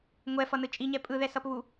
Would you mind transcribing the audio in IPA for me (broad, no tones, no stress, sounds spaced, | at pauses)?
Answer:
ŋʷ ɛ f ʌ n ɯ t͡ʃʼ i ɲ ɛ pʼ ɯ ð ɛ s ʌ p β u